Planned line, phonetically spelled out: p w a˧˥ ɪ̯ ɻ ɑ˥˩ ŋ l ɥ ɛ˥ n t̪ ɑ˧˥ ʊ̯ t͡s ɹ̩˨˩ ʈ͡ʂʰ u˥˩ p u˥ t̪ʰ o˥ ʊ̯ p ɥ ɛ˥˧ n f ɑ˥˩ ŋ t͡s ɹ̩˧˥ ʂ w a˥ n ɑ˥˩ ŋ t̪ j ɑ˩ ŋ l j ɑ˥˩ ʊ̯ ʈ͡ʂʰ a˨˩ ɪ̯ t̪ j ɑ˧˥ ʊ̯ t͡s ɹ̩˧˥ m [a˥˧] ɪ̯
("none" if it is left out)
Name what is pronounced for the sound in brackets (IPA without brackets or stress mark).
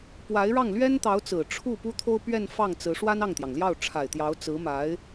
a˧˥